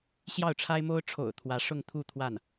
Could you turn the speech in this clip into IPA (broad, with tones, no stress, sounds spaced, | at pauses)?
ɕ j ɑ˥˩ ʊ̯ ʈ͡ʂʰ a˥ ɪ̯ m o˥ ʊ̯ ʈ͡ʂʰ o̰˨˩ ʊ̯ t̪ʰ w ä˧˥ ʂ ʊ˥˧ ŋ t̪ʰ u˥˧ t̪ʰ w a˥˩ n